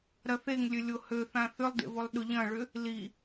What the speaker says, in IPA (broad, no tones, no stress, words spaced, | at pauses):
ɾɐθeŋlʲø lʲohøθã θʏlˠdḛ volˠɗʊ ʎɐ̃ɭʏ | li